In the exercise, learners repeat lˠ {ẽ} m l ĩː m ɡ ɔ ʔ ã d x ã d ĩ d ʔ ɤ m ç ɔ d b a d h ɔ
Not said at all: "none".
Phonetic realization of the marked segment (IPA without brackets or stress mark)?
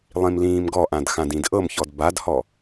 ĩ